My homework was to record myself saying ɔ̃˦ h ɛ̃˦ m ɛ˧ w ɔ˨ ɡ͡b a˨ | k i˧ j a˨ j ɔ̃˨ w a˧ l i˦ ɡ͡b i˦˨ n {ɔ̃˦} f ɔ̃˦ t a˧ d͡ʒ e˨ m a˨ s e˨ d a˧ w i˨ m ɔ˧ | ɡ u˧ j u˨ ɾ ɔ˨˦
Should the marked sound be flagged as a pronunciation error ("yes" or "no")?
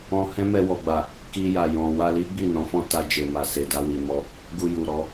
yes